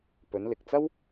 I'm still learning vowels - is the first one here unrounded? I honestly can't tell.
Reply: no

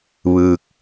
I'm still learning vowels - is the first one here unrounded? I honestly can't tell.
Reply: yes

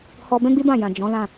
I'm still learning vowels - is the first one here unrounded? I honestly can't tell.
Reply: no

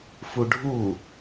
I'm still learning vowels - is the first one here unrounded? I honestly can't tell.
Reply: no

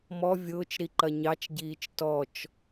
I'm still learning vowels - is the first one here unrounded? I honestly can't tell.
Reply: no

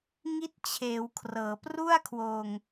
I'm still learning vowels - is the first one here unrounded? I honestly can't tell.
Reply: yes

